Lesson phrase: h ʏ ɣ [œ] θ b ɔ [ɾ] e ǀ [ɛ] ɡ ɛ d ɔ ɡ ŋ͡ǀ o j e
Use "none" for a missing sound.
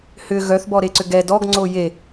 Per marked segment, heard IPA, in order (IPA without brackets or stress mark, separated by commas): œ, ɾ, ʏ